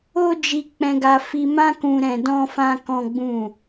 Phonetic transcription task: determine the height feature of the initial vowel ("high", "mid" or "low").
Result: mid